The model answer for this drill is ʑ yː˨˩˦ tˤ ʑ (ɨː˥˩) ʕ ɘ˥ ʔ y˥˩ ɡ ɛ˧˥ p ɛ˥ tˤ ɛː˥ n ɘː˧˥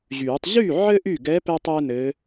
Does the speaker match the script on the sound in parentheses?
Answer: no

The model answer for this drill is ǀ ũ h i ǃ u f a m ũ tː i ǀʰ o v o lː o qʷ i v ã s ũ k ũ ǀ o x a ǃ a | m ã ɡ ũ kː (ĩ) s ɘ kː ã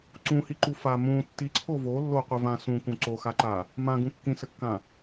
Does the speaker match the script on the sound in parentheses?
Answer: yes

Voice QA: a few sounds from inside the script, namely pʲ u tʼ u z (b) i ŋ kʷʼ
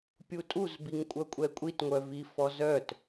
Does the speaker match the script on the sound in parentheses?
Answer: yes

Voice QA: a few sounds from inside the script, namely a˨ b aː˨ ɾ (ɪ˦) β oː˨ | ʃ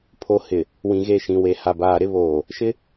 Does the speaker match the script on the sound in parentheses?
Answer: yes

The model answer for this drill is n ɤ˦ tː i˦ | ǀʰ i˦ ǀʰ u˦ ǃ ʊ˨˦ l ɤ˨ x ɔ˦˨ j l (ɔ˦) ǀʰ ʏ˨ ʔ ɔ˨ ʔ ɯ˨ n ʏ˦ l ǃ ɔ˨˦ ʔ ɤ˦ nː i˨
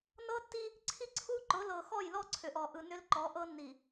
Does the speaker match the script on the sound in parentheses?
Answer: yes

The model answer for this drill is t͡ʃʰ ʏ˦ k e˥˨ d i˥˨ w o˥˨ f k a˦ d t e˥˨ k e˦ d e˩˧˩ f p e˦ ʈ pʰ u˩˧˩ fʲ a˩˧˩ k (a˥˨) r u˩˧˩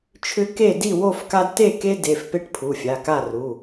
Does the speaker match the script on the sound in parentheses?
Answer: yes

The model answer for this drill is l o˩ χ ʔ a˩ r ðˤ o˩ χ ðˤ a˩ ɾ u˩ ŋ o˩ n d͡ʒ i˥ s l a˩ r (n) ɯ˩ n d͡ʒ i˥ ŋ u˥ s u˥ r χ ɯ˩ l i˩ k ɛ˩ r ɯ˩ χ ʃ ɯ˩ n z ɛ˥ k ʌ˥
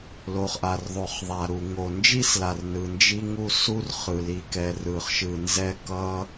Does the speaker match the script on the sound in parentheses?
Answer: yes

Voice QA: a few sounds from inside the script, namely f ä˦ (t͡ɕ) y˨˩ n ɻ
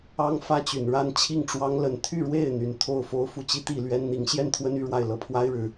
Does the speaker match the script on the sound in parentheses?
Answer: yes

